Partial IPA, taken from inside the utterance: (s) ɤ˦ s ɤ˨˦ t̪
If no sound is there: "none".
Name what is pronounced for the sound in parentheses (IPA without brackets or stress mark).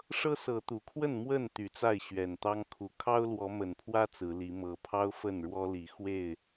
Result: ʂ